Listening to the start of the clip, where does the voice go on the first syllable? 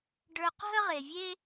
high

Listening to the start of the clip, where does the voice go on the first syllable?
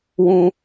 high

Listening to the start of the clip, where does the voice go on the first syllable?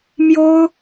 high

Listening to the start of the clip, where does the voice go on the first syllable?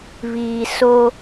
low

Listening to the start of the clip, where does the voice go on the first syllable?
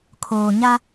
low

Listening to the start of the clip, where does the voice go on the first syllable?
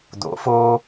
rising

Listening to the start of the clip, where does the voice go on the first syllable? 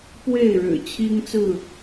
falling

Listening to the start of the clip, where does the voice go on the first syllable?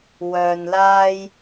low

